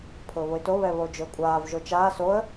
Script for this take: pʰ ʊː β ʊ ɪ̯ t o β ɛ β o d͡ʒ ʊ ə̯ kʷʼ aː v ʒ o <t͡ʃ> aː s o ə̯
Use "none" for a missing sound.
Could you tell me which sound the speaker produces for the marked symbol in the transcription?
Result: t͡ʃ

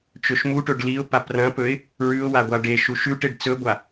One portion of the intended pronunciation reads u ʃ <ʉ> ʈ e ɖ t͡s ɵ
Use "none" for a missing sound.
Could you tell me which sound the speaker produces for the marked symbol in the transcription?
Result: ʉ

